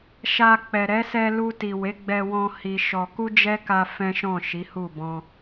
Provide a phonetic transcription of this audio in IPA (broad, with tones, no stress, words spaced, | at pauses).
ʃa˧ k͡pɛ˨ ɾɛ˨˦sɛ˧lu˧ ti˨we˨˦ɡ͡bɛ˧wɔ̃˧ hi˧ʃɔ˧ ku˦d͡ʒɛ˦ka˧ fɛ̃˦ʃɔ̃˦˨ ʃi˨˦hu˦˨bɔ̃˧